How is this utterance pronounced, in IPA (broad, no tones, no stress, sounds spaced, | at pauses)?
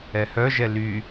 ɛ h œ ʒ ɛ l y